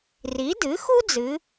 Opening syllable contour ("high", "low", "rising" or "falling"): rising